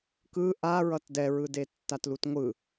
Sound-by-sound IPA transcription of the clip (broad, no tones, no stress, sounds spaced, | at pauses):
k ɯ ʔ a ɹ ʌ t d ɛ ɹ ɯ d e tː a t l u t ŋʷ ɯ